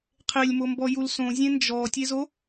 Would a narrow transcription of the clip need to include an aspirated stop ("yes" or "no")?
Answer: yes